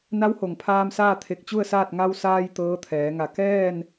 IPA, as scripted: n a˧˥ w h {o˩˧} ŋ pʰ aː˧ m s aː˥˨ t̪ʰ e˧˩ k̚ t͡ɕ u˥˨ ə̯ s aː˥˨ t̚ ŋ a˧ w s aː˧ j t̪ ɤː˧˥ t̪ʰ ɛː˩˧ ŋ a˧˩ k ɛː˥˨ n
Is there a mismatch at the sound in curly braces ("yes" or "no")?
yes